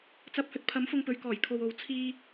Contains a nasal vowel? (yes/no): no